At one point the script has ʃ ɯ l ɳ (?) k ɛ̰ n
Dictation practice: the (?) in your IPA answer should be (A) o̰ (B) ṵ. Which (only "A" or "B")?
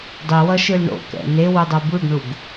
A